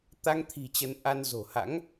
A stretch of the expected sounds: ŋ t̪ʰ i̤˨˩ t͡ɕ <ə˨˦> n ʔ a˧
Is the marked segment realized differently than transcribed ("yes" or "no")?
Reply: no